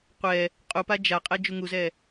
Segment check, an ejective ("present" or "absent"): present